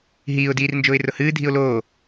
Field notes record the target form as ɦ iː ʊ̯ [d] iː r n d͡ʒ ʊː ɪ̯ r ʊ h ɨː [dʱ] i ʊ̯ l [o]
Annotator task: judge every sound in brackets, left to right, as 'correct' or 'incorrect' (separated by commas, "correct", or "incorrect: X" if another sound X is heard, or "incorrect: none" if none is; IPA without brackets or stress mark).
correct, correct, incorrect: oː